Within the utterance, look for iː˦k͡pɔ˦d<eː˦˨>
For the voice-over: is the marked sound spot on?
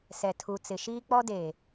no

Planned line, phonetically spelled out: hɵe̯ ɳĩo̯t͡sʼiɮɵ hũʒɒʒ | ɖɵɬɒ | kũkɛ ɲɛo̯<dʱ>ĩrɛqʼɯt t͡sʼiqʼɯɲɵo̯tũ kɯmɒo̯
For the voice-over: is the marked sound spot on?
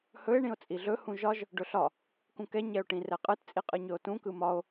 no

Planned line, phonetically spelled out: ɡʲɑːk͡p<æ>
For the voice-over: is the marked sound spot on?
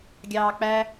yes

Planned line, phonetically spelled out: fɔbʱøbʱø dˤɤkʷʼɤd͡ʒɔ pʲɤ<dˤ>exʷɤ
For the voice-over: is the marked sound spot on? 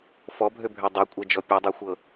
yes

